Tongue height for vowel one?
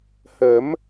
mid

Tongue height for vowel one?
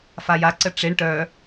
low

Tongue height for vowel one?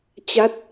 low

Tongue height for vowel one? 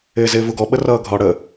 high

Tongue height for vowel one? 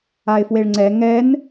low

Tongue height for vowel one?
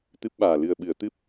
high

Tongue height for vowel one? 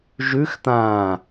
high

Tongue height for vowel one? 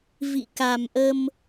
high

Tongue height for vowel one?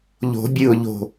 mid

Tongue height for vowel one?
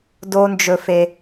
mid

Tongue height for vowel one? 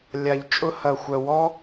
low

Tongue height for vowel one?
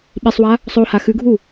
high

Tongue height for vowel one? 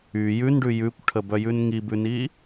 high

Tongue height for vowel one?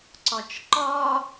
low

